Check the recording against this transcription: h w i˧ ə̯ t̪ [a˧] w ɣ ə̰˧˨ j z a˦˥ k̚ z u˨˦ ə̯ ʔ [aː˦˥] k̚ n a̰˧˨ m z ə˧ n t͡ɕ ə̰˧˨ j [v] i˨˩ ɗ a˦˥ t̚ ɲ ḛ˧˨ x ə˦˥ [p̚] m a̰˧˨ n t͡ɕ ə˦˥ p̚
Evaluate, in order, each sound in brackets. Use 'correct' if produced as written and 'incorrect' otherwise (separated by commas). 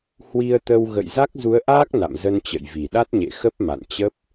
incorrect, correct, correct, correct